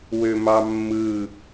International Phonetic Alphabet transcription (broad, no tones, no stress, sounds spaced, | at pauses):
w ø m ɑ mː ɯ